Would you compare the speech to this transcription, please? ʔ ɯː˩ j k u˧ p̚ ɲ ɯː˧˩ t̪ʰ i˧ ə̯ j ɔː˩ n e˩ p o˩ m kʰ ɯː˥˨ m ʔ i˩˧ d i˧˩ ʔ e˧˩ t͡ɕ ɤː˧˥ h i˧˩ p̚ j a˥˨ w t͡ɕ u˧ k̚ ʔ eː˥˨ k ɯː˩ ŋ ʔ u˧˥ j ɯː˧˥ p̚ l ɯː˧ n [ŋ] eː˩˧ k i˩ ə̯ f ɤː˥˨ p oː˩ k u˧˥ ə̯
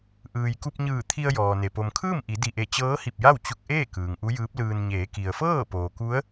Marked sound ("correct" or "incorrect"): incorrect